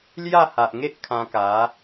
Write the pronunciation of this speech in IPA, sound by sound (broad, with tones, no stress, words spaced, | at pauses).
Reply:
lja˥˧ha˨ʔŋe˦ʔ kʰã˧ka˨˦